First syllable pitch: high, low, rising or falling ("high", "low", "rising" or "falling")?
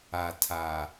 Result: low